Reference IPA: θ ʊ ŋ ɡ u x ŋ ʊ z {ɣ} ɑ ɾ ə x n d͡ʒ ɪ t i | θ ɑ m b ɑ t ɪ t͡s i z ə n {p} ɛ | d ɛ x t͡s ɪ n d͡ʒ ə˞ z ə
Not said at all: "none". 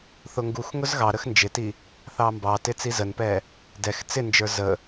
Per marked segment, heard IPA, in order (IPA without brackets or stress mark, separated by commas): ɣ, p